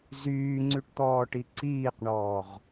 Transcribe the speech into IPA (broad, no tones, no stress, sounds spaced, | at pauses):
z yː ŋ͡ǀ y ʈ t̪ ɔː ʈ i ǀ iː q ɳ ɔː ʁ